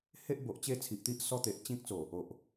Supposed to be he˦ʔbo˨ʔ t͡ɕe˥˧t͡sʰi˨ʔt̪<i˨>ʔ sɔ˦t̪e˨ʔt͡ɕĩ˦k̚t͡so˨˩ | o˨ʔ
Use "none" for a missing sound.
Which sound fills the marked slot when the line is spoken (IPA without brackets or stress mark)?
i˦